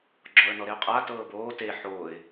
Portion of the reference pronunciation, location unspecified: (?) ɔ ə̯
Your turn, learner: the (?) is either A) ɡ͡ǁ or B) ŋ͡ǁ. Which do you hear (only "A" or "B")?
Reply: A